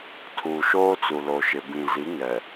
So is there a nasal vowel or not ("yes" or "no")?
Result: yes